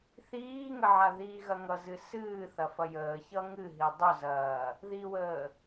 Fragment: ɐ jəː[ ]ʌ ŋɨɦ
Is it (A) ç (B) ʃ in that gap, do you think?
A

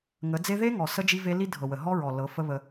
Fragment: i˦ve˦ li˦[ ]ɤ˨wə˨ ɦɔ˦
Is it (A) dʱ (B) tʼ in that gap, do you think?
A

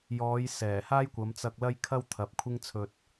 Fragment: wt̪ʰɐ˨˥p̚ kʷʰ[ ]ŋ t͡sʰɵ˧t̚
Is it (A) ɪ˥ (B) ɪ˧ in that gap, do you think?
A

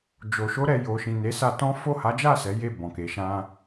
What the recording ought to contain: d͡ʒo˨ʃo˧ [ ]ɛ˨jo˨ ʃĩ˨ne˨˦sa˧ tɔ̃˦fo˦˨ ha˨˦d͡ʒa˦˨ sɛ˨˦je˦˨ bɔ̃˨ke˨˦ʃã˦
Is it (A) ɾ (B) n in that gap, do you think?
A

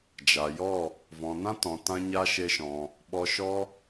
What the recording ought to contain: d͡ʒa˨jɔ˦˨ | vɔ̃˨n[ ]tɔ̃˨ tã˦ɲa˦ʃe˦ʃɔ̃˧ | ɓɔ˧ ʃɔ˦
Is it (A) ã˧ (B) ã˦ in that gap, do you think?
B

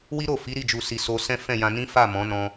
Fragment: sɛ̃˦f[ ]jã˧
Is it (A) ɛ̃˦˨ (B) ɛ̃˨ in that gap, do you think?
A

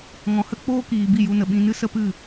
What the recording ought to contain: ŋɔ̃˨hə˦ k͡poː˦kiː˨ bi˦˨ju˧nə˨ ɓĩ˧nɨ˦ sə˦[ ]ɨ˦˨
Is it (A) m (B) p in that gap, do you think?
B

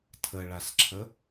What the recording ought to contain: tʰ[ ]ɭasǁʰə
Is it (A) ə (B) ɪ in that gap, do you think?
A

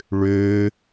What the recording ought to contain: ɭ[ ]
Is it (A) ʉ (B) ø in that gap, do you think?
B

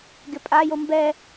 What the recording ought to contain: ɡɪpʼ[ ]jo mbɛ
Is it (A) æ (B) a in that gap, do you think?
B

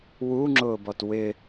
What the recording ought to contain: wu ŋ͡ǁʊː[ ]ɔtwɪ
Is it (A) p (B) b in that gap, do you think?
B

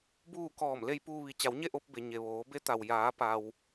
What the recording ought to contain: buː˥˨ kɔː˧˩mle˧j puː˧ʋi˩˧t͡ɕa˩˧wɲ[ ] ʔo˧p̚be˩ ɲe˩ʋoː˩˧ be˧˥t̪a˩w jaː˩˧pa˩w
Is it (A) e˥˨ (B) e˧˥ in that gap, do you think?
A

